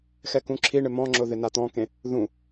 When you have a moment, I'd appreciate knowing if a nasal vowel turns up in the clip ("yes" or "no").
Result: yes